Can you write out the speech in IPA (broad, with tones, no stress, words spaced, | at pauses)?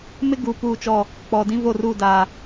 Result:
mɪ˦ ɡu˨ puː˦˨t͡ʃɔ˦˨ | k͡pɔ˨ dĩ˦vo˦˨ruː˦˨daː˨